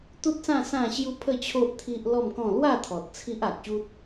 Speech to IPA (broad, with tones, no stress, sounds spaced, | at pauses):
t̪ u˦ t̚ s ã˥˧ s ã˥˧ ɕ j u˦ pʰ ə˥˧ t͡ɕʰ o˦ ʔ t̪ʰ i˦ ʔ l ɔ˥˧ m k ɔ̃˥˧ l w a˥˧ t̪ʰ ɔ˨ t̚ t͡sʰ i˦ ʔ a˨ k̚ ɕ u˦ t̚